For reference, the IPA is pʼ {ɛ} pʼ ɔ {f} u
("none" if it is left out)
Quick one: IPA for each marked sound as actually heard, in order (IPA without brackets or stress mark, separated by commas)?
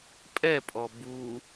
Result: ɛ, b